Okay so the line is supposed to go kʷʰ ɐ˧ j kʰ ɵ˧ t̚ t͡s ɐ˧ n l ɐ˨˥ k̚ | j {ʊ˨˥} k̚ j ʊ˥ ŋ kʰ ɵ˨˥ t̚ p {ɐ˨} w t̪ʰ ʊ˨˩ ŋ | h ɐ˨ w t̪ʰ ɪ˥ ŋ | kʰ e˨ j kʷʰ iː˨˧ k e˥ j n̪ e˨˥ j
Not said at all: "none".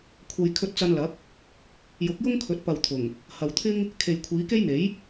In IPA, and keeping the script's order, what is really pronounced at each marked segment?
ʊ˨˥, ɐ˨

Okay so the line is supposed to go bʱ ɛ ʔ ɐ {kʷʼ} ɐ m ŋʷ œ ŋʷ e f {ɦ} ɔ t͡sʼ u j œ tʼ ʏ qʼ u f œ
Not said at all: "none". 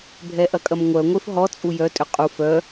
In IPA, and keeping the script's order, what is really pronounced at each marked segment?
kʼ, ɦ

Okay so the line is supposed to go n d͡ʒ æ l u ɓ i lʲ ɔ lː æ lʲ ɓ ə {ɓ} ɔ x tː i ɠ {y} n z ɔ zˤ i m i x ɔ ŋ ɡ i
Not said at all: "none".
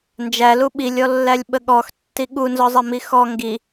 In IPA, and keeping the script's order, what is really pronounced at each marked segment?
ɠ, u

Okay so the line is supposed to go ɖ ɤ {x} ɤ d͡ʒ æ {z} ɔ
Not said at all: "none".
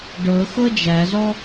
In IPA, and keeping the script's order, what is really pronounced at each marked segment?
x, z

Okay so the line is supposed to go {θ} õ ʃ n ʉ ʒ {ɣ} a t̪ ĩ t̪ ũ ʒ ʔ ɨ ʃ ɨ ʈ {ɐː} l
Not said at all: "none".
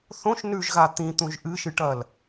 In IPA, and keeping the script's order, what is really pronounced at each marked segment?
θ, ɣ, ɐː

